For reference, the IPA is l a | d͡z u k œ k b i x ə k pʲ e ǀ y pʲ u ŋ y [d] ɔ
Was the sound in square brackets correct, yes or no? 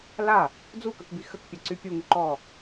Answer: no